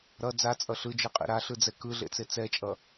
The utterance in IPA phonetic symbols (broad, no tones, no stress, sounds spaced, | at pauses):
ɾ ʌ d͡z a t͡sʼ ʌ ɬ ɯ d͡ʒ ɯ qʼ ḭ ɾ a ɬ ɯ d͡z ɛ k ɯ ɮ ḛ t͡s e t͡s ɛ t͡ʃʼ ʌ